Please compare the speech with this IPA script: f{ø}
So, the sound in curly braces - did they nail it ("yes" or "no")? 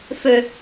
yes